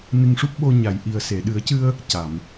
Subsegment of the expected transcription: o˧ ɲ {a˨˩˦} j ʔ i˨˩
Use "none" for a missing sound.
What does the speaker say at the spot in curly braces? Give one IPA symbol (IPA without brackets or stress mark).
a˨˩˨